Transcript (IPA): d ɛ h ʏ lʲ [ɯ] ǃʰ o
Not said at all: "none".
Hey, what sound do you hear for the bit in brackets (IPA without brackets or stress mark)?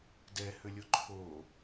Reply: ʊ